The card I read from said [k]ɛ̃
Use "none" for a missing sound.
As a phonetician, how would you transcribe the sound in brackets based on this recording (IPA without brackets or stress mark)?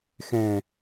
x